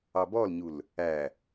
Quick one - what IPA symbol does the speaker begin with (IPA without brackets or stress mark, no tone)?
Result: ɑ